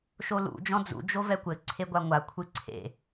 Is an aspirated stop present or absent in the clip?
present